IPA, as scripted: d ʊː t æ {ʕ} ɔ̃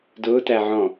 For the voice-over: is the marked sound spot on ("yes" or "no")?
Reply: yes